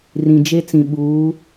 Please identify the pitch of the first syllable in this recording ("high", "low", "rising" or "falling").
low